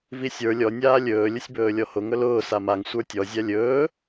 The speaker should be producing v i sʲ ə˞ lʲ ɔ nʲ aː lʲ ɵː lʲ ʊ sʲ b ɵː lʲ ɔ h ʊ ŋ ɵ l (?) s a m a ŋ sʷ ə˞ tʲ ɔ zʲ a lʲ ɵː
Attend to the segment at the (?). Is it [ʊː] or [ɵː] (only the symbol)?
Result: ʊː